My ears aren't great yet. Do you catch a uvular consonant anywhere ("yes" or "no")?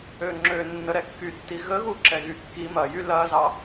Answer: no